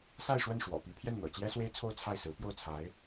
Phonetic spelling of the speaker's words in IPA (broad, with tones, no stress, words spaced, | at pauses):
sa˥˧ɪ̯ʂwə˥˩n ʂwɔ̰˨˩pi˧˥ pʰjɛ˥˩nn̪ɤ̰˨˩t͡ɕjɛ˥swe˥ɪ̯ t͡sʰo˥˧ʊ̯t͡sʰa˥˩ɪ̯sɹ̩˧˥ pjo˥˩ʊ̯t͡sʰa˧˥ɪ̯